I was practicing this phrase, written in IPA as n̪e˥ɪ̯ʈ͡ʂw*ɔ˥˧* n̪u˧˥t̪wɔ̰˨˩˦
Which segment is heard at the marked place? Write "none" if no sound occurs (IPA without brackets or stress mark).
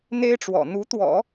ɔ̰˨˩